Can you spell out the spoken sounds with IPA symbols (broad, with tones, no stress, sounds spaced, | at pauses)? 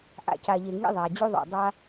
ʔ a̰˨ c a˨ ʎ e˨ ŋ ḭ˦ ðˤ a˨ d͡ʑ u˦ ðˤ o̰˨ dˤ a˦